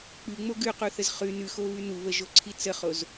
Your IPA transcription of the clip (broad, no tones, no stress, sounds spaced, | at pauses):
k͡p ʉ ŋ͡m o ɡ ʉ q u θ ə z χ ʉ n ʉ x o β ʉ n u β ə ʒ o ǀʰ i t͡s ə χ o z